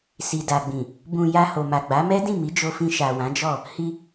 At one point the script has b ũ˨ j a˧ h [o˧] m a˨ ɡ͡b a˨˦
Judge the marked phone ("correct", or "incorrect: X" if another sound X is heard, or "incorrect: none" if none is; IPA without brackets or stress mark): incorrect: o˨